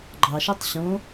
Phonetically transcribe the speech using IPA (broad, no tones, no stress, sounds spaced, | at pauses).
ɡ͡ǃ ɑ ʃ ø tˤ ɕ õ